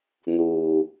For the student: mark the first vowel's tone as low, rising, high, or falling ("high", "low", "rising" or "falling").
low